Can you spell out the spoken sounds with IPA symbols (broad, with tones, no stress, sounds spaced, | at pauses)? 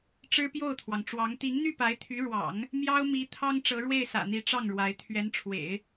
ʈ͡ʂ ɻ̩˥ p j o˥˩ ʊ̯ t̪ʰ w ɑ˩ ŋ ʈ͡ʂ w ɑ˧˥ ŋ t̪ i˧˥ ŋ n̪ y˥˩ p a˧˥ ɪ̯ t̪ʰ y˧˥ ɻ w ɑ̰˨˩˦ ŋ | m j ɑ˥ ʊ̯ m i˧˥ t̪ʰ ɑ˥ ŋ ʈ͡ʂ ɤ˧˥ ɻ w e˥˩ ɪ̯ s ä̰˨˩ n̪ i˧˥ ʈ͡ʂ ɑ˥˩ ŋ ɻ w a˧˥ ɪ̯ t̪ʰ ɥ ɛ˧˥ n ʈ͡ʂʰ w ḛ˨˩˦ ɪ̯